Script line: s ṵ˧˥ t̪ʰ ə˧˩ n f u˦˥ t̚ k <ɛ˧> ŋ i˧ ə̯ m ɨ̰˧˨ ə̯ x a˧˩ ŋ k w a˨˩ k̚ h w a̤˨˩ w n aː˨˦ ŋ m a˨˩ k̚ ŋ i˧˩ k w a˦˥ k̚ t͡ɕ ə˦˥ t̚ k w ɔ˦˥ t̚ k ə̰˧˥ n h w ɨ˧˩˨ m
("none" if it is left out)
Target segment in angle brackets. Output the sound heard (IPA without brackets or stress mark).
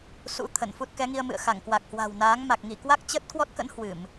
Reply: ɛ˨˦